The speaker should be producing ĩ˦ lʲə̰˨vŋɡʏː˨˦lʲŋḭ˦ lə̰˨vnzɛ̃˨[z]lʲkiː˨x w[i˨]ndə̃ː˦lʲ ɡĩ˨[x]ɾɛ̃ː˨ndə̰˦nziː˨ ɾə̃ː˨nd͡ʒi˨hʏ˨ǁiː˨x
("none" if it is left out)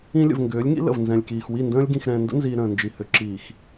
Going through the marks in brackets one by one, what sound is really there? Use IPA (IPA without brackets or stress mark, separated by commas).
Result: none, i˦˨, x